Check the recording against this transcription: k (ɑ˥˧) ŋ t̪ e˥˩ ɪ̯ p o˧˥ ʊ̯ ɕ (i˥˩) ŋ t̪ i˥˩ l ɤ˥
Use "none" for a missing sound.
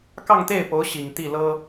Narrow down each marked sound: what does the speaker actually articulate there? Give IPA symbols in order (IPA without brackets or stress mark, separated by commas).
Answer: ɑ˥˧, i˨˩